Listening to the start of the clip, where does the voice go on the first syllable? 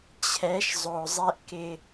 rising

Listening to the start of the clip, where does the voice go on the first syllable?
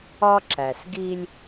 high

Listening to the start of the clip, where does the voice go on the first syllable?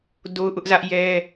high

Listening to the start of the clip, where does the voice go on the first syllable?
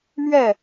falling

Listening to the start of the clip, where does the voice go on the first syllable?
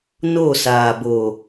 falling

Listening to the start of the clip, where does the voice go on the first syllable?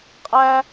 high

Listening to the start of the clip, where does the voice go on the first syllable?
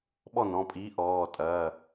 falling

